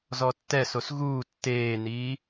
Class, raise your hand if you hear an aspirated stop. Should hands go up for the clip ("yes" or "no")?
no